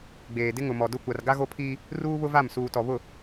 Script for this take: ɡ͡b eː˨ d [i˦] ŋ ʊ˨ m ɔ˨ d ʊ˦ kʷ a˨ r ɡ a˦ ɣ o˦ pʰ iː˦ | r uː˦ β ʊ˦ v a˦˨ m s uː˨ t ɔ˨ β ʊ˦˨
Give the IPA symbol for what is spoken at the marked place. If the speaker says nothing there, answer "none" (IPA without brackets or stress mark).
ɪ˦